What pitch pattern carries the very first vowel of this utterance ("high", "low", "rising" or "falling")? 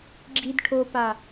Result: low